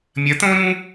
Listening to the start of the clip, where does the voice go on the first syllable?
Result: rising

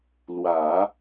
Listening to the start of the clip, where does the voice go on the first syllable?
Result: low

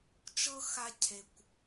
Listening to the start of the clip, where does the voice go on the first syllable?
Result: high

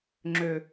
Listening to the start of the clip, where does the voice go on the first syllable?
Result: low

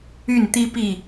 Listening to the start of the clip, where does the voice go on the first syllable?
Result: falling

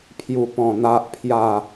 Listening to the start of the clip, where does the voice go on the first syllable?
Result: low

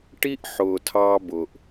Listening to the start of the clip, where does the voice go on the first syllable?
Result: high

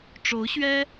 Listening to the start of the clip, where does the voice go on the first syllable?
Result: rising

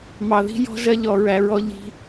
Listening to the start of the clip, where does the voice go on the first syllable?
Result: low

